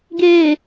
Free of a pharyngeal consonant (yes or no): yes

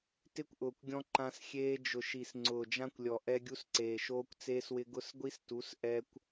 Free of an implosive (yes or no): yes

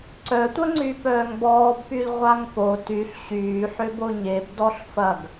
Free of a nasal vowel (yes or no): yes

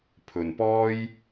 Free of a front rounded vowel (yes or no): yes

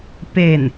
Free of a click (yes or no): yes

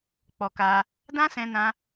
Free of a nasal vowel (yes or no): no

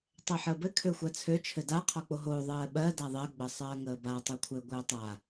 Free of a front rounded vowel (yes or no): no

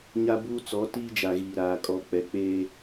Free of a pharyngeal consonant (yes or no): yes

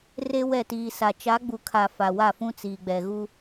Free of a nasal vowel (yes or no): no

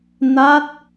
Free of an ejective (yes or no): yes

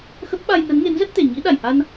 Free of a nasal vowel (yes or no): yes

